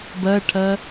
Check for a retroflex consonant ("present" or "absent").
present